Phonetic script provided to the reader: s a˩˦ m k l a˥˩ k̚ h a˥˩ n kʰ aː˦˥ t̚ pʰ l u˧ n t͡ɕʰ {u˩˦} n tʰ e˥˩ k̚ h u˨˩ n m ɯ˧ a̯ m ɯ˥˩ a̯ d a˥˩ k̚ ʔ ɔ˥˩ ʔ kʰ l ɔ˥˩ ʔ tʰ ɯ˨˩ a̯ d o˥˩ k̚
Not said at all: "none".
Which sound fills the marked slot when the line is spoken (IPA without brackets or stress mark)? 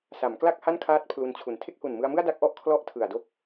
u˩˦